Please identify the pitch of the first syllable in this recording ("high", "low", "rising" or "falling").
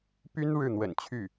high